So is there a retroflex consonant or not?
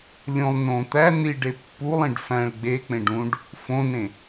yes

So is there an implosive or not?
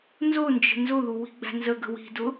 no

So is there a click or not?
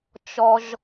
no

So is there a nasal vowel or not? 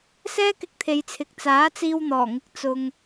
no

